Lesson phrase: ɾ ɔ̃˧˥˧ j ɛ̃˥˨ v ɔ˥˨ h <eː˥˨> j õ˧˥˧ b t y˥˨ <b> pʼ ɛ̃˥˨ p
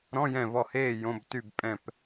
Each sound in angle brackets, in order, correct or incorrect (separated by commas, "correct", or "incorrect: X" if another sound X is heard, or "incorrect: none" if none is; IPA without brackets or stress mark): correct, correct